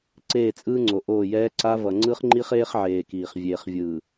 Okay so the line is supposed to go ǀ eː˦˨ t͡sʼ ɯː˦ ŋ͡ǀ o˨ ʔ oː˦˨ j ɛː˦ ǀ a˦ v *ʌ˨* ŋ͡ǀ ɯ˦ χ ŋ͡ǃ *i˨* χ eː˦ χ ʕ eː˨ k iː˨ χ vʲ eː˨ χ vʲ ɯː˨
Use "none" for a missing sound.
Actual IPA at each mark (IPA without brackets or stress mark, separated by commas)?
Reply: ʌ˨, i˦